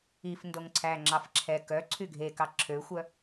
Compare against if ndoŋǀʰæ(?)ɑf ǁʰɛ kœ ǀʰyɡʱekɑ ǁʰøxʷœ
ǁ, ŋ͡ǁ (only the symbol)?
ŋ͡ǁ